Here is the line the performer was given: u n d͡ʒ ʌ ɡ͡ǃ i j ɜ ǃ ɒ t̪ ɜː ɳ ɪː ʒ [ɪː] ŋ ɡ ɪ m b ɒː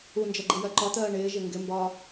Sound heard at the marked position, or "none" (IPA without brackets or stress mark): ɪ